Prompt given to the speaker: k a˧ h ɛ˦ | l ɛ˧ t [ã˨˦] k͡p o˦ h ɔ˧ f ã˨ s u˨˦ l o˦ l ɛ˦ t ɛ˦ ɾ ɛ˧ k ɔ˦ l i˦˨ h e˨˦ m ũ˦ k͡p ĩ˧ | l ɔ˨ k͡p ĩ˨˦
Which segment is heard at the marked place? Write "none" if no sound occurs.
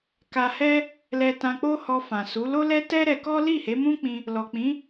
ã˧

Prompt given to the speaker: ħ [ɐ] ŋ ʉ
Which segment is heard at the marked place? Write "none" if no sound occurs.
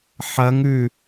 ɐ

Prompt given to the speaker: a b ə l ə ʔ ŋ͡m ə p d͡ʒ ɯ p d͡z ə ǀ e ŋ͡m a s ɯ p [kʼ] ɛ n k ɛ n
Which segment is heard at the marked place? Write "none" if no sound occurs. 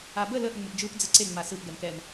ɡ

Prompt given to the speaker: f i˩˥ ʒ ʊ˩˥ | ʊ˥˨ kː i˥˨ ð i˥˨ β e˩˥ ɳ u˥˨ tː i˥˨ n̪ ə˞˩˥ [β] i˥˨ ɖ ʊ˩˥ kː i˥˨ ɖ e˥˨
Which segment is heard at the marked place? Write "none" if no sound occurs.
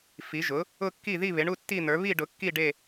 β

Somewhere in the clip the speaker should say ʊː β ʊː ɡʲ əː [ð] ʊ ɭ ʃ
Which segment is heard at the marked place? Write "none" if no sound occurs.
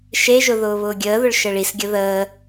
ð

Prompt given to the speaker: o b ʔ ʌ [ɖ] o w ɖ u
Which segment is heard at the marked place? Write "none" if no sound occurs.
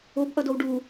d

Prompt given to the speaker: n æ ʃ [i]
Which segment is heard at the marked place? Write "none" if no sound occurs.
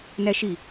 i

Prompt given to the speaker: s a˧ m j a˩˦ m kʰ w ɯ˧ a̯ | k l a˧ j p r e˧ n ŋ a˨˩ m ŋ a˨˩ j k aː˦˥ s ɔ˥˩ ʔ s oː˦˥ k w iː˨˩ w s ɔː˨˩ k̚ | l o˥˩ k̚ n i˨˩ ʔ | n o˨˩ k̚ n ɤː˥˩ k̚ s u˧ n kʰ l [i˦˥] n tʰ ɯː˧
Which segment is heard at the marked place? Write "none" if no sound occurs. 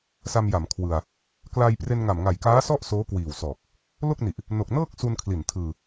i˨˩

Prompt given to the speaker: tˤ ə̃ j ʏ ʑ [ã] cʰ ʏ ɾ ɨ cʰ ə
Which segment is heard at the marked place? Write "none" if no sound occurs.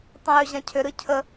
ã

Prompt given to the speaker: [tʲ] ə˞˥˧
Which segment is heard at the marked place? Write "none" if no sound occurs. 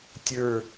tʲ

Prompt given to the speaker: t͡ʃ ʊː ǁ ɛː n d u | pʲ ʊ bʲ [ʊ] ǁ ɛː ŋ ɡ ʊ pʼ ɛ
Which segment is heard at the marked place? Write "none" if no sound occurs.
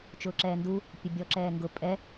ɔ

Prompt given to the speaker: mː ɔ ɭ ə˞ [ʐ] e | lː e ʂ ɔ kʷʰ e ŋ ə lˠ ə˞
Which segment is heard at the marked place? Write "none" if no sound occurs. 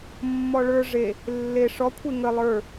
ʐ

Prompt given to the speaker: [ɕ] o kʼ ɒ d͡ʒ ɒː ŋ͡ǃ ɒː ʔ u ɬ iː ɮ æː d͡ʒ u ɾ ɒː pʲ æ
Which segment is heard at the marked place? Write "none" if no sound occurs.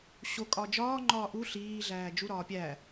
ɕ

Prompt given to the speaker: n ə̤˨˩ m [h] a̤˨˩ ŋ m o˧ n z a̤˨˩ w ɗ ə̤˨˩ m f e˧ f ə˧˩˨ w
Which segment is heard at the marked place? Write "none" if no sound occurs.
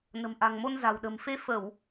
ʔ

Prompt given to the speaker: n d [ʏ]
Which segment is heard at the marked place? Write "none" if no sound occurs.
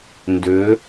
ʏ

